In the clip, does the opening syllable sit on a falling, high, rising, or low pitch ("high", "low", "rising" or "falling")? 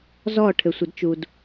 falling